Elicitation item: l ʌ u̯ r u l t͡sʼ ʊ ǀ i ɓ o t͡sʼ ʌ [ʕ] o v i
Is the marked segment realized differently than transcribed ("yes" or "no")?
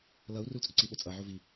no